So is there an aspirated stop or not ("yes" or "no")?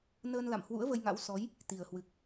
no